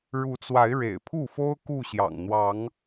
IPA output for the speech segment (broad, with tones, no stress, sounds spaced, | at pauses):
ɻ u˨˦ t͡s w a˨˦ ɪ̯ ɻ ḛ˨˩ ɪ̯ pʰ u˥˨ f o˦ ʊ̯ k u˥˨ ɕ j ɑ̰˨˩ ŋ n̪ w ɑ˨˦ ŋ